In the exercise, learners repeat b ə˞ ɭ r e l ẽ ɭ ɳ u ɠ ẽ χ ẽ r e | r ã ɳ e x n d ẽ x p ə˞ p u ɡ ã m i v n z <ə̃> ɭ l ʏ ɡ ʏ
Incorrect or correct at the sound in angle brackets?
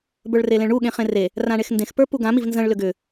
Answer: correct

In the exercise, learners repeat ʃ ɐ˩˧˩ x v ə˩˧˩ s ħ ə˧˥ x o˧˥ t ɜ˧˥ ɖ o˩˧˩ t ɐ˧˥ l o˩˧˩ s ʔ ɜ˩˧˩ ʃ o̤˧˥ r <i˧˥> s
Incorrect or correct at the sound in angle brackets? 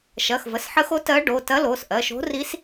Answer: correct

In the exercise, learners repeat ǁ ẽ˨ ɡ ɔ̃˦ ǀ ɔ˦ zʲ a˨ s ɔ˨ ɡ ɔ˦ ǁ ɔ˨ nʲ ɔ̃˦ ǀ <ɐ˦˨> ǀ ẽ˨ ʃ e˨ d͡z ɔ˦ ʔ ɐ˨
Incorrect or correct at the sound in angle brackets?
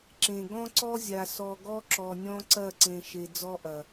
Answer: correct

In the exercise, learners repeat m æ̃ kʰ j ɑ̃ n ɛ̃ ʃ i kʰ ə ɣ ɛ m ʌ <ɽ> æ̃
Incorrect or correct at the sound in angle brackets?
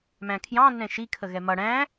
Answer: correct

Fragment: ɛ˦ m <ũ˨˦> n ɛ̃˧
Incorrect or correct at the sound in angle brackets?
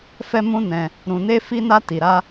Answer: incorrect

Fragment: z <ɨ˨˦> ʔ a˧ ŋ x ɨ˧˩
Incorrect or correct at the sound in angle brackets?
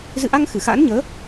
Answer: incorrect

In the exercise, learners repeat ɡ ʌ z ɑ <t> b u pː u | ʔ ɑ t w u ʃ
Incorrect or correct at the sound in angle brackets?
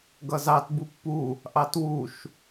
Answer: correct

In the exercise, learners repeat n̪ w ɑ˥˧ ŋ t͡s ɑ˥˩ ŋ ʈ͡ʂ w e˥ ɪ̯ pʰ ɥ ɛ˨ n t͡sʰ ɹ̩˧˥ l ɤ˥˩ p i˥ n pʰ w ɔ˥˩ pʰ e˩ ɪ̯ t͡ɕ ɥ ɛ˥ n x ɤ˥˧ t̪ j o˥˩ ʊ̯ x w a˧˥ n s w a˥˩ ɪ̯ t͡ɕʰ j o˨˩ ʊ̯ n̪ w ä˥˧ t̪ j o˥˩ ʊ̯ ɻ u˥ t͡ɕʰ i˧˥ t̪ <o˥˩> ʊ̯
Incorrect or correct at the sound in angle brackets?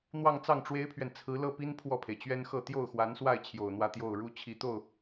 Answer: correct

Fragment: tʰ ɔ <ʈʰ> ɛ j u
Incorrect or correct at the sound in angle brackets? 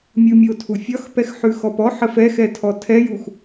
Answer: incorrect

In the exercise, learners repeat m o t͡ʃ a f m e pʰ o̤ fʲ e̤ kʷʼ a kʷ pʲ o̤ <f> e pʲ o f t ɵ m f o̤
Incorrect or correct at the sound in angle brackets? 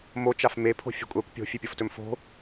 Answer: incorrect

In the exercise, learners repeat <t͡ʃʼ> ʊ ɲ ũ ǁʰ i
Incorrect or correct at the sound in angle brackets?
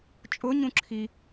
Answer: correct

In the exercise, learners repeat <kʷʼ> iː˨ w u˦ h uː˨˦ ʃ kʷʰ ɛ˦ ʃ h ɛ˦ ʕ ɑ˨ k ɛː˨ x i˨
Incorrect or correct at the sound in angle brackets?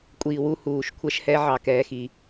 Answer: correct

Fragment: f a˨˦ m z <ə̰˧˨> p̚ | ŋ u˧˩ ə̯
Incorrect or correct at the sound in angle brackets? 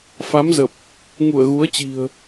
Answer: incorrect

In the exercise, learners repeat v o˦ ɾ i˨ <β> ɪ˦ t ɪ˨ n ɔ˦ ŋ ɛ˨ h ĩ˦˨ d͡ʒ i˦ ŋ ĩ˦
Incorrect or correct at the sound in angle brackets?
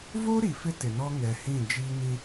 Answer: incorrect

